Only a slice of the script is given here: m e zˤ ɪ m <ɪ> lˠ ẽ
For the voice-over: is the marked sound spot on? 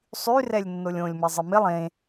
yes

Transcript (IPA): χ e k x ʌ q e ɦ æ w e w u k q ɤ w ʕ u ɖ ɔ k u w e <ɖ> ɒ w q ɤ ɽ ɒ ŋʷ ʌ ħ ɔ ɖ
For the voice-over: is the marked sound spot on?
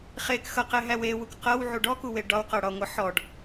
yes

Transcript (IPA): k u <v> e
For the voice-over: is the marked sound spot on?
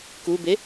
no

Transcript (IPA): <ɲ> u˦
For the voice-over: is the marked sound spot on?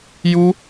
no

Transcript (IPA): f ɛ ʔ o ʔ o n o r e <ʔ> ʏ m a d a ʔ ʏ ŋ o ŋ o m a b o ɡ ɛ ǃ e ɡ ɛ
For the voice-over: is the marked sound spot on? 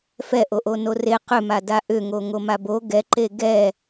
no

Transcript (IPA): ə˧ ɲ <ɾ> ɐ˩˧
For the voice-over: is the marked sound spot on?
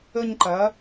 no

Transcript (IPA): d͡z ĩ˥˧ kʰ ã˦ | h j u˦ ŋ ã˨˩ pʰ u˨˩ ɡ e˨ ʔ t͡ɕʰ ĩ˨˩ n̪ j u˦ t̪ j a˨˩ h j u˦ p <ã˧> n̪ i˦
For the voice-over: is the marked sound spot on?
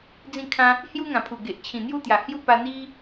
no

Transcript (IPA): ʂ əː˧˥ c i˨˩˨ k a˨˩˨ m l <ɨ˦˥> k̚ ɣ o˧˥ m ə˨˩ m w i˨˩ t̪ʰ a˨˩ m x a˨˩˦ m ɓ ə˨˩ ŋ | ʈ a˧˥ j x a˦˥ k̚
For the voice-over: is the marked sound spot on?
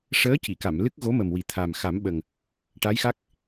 yes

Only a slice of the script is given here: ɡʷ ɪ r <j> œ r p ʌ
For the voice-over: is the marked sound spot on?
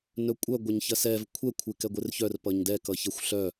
no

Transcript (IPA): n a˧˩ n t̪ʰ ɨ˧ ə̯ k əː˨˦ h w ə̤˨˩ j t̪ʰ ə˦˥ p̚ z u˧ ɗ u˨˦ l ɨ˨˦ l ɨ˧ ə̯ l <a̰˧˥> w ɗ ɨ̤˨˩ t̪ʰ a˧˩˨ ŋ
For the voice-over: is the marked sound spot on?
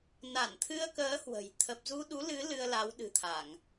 no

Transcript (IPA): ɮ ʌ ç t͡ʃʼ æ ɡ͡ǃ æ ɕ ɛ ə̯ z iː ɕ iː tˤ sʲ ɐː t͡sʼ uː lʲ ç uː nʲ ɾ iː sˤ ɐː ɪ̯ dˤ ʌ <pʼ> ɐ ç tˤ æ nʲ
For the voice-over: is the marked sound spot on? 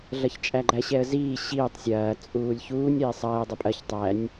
yes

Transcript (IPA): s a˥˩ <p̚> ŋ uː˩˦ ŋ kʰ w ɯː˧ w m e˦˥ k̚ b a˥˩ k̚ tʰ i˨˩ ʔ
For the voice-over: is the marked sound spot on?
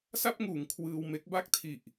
yes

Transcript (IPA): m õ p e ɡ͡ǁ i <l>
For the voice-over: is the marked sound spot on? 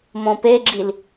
yes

